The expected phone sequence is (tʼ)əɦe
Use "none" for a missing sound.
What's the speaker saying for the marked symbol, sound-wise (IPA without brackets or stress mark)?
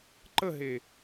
ǃ